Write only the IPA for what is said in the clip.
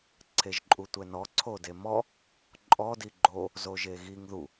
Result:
ǀʰ e ʒ ǃʼ u tʷ ɛ n ɔ ǀʰ o d e m ɔ | ǃʼ ɔ d i ɡ͡ǃ o | z o ʒ e ɣ i ŋ ð u

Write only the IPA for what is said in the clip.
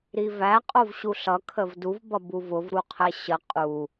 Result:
ɾ i v æ qʼ o v ɕ u ɬ ʌ kʰ ə v d u v b ʌ b u v ʊ v ɾ u qʰ ɛ ɕ ə qʼ u

